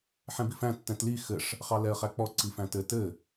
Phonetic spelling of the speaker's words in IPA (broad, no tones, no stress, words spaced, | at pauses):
ħɛ̃bifæ̃ tːɛ̃tli xɘʂ | χɑlɛə̯χæk͡pɔ ǀifæ̃tɘ tɘ